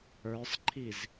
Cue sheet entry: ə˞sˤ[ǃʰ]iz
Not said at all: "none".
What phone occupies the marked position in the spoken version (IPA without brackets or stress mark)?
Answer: ǃʰ